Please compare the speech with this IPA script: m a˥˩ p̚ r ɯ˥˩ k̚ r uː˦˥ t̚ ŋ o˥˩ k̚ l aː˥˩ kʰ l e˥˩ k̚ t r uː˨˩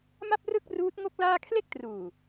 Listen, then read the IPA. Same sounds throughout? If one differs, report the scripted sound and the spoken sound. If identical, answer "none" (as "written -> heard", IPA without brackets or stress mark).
none